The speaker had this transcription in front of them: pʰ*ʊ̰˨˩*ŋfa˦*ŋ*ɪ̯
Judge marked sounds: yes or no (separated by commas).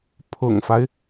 yes, no